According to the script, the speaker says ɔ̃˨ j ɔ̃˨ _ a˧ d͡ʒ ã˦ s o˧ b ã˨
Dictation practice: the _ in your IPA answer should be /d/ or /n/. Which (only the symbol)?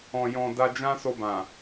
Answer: d